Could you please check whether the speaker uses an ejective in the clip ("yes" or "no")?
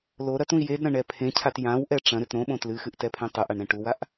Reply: no